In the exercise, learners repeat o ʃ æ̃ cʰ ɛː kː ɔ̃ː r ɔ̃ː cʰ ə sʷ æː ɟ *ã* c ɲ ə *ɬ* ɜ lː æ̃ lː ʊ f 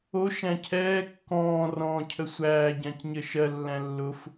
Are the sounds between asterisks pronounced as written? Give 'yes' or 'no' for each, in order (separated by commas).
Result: yes, no